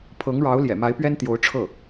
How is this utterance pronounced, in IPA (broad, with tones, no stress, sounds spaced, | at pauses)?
pʰ ɤ˧˥ ŋ ɻ ɑ˧˥ ʊ̯ l j ɛ̰˨˩ m a˧˥ ɪ̯ p ɥ ɛ˥ n t̪ j o˧˥ ʊ̯ ʈ͡ʂʰ ɤ˥˩